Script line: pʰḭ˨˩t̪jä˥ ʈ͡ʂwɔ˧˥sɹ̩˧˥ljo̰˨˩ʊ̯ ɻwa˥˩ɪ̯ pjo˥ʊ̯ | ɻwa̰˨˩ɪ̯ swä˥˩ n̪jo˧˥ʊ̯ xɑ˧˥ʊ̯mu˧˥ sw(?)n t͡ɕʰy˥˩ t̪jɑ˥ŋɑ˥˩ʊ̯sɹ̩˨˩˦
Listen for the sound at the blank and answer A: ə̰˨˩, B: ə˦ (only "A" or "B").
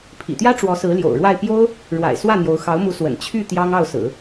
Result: A